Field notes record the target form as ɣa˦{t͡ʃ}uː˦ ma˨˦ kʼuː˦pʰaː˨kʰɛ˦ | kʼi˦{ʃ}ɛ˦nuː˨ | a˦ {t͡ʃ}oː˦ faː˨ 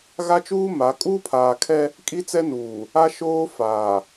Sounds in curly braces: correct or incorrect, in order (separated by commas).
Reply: correct, incorrect, incorrect